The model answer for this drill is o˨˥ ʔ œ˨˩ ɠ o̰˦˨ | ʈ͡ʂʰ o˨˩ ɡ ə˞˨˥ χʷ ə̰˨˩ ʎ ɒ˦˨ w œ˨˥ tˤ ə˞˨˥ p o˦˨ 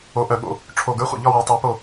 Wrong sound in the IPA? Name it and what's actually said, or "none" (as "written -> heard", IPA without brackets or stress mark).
none